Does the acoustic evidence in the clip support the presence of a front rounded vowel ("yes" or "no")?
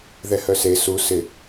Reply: yes